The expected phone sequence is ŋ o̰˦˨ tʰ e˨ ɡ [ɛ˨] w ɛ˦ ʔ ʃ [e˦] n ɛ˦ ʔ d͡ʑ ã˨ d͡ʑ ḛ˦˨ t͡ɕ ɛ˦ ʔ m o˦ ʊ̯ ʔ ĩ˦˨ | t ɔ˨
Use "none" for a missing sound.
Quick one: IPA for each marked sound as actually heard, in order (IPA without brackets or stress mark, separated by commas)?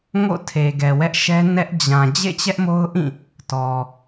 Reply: ɛ˨, ɛ˦